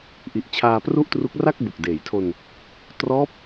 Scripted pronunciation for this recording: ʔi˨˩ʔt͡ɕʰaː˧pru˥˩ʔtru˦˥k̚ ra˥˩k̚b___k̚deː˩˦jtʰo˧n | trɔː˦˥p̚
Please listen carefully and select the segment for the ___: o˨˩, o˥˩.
o˨˩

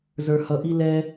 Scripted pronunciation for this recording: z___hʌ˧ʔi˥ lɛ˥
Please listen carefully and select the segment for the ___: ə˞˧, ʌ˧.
ə˞˧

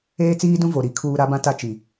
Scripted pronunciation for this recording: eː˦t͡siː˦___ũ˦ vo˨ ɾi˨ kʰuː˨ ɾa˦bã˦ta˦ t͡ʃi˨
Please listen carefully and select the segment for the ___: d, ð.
d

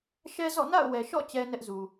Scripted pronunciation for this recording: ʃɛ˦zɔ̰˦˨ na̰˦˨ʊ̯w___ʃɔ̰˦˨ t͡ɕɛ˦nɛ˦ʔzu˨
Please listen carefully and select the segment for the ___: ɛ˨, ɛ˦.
ɛ˨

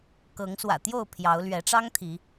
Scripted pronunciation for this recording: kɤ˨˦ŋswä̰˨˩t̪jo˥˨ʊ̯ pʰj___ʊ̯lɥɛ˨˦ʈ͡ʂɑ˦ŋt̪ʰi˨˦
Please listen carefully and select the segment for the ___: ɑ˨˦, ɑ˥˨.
ɑ˨˦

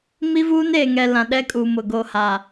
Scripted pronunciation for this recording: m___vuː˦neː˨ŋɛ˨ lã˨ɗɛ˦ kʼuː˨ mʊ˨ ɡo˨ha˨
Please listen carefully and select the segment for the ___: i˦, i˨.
i˦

